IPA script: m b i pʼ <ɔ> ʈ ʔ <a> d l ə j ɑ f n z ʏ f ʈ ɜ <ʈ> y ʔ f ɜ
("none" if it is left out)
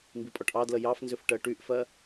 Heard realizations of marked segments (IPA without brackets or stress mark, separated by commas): ɔ, ɑ, ʈ